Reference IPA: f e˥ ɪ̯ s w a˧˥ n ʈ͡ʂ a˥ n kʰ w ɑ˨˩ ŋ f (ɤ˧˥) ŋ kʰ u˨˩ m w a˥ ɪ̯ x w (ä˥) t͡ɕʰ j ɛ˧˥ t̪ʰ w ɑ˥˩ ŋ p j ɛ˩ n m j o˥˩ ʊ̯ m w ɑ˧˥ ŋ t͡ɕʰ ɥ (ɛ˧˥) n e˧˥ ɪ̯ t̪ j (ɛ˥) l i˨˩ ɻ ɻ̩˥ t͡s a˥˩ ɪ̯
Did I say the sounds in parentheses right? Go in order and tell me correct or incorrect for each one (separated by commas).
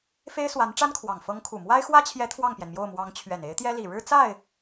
correct, correct, incorrect, correct